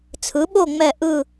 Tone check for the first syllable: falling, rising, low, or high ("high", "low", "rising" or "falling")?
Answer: rising